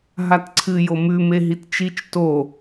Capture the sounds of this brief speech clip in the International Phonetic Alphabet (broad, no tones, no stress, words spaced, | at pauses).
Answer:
ɦatǀʰɨ jomʉ meɦitt͡ʃit͡ʃ to